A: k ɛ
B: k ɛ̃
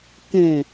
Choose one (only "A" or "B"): B